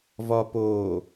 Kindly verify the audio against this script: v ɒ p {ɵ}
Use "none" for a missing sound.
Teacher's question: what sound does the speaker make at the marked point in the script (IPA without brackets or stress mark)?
o